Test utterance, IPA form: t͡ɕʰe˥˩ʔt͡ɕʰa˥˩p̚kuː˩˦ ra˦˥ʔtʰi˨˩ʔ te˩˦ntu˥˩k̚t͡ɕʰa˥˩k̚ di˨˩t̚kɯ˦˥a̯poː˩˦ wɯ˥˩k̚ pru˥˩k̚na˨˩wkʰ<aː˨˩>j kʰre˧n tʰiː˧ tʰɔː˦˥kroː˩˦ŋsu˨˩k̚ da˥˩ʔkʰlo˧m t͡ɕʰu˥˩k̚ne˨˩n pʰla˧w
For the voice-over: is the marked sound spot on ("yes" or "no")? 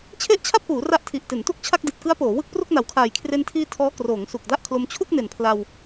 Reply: yes